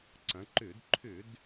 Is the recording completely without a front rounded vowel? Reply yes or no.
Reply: no